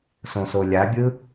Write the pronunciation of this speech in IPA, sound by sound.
sõsolʲabʲɯ

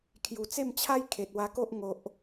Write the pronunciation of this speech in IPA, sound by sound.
kʰju˨˩t͡se˥˧mt͡ɕʰa˦j kʰe˨t̚wa˧ko˦ʔ ŋo˨ʔ

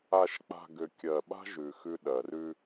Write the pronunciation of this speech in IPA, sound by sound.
a˨ʃk͡pa̤˨ ɡʏ˨ kʲɜ˨ɓa̤˦ʒ ʉ˨ xʉ˦ ɗɜ˨r ʉ˦

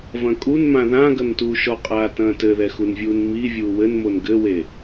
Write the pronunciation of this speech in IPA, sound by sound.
vɐ̃kʼunmã ðã ɡɐntuːʃɔqʼaː tɐ̃ːtɘðɛ xunvʲuːnmi vʲuːwɘnmon ɡɘwe

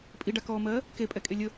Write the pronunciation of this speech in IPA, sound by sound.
pʼiɖakɔːmɜː | kepʼɛkʼe lʲə

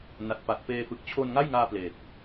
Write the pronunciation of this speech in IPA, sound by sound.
na˨˩t̚ pa˨˩t̚peː˧fɯ˨˩k̚ t͡ɕʰo˧nŋa˥˩jŋaː˧ pleː˨˩k̚

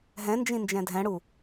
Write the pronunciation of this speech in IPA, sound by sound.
ɦɛ̃nd͡ʒĩ nd͡ʒɛ̃dʱɛ̃ɽu

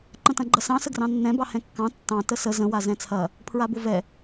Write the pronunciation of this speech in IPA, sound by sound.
ǃə̃tɐ̃ɡ͡ǃɐsɑ̃ səɡrɑ̃nːɛ̃bɑ hɛ̃kːɑ̃ tːɑ̃ təsə zə̃wa zɛ̃t͡sʰɐ | pʰɹabovɛ

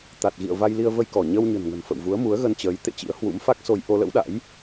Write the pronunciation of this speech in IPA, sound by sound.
t̪a˨˩t̚ɣḭ˧˨ə̯ va˧jli˧ə̯ və˧jkɔ˧˩ ɲə˧w ɲə̤˨˩nŋə̤˨˩nfə̰˧˨wvu˨˦ə̯ mu˨˦ə̯ɣə˧nt͡ɕəː˨˦j t̪ḛ˧˨ t͡ɕḭ˧˥ə̯hwṵ˧˥m fa˦˥k̚so˧j ʔo˧lə̰˧˥wɗa̰˧˥j

